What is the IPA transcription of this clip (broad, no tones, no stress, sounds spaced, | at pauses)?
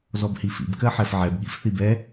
z ɔ b h i f ḭ b k ɜ ħ ɛ f ʕ ɛ b ɠ ḭ f θ i b ɛ